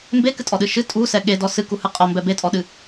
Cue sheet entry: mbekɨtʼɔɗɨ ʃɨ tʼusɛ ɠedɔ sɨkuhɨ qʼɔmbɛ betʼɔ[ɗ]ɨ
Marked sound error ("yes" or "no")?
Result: no